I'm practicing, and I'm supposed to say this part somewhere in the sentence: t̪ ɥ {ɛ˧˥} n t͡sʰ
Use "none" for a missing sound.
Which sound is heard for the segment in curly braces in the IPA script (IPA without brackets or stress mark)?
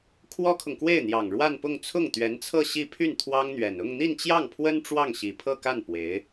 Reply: ɛ˧˥